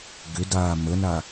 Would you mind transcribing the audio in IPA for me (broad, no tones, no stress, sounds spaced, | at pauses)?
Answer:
ɡ ʏ d aː m ə n a